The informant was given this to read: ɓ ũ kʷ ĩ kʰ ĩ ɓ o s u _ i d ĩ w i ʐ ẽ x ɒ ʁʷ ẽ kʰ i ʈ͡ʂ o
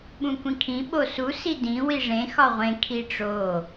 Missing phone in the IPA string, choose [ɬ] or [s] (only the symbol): s